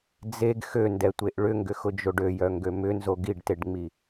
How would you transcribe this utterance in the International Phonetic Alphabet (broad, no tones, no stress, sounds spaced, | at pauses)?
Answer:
d͡z e ɡ x ø n d ɛ tʷ e ʔ ɭ ʏ ŋ ɡ ʏ x ʊ d͡ʒ o ɖ ø j œ ŋ ɡ ø m ʏ n z o ɡ i ɖ t e ɖ ŋ͡m i